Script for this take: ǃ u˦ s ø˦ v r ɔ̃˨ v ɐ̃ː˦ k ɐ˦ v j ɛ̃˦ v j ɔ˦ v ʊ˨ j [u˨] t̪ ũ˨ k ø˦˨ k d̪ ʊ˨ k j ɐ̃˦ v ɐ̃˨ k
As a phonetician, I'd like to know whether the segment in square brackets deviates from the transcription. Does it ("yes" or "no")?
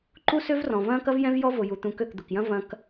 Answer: no